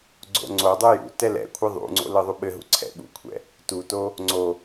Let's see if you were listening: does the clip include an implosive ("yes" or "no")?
yes